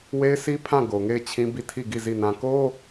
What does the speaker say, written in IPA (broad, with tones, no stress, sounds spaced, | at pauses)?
w e˦ ɪ̯ s i˦ pʰ ã˦˨ ɡ o˨ ŋ e˦˨ ɪ̯ t͡ɕʰ ĩ˦ b i˦˨ tʰ i˦˨ ɡ i˦˨ z i˦˨ n ã˦ k o˦